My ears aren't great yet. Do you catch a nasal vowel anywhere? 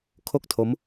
no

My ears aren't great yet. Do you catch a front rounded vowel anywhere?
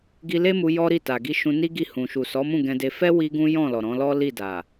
no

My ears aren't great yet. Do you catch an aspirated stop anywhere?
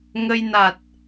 no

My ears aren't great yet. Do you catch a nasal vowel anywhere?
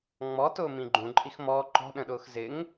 yes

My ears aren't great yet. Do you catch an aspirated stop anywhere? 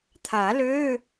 yes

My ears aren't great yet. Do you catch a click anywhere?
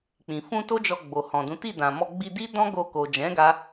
no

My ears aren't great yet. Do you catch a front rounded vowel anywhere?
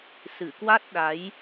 no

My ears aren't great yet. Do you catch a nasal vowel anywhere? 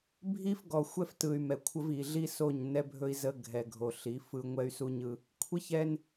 no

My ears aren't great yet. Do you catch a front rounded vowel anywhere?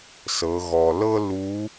no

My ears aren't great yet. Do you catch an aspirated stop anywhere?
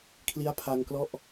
yes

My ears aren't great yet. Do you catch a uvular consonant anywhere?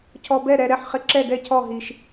yes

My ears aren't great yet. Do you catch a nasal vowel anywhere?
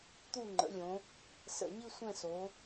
yes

